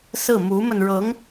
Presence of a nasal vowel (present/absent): absent